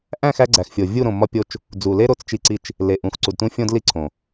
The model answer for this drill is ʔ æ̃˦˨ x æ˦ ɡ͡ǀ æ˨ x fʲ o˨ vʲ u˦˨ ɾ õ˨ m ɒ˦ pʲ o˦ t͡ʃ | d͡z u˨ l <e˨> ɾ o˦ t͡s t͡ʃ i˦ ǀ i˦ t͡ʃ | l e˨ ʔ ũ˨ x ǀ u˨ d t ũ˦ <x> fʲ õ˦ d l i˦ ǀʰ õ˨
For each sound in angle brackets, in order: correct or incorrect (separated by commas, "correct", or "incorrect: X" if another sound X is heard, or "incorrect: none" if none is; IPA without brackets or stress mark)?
incorrect: e˦, incorrect: none